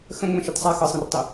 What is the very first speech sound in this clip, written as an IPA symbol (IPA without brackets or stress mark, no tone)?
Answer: x